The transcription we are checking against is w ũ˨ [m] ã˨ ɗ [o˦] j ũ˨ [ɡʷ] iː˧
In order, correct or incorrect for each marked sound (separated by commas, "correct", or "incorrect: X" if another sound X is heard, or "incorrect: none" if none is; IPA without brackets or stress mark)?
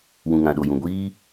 incorrect: ŋ, incorrect: o˨, correct